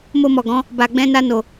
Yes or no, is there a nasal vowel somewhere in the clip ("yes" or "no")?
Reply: yes